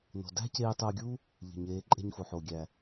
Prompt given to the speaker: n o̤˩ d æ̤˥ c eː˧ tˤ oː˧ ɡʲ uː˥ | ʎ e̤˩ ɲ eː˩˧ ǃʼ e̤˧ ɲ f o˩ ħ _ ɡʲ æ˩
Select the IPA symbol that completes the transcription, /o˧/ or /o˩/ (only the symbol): o˩